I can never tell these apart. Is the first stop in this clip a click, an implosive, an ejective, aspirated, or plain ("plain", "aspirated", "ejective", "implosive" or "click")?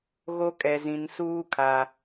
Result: ejective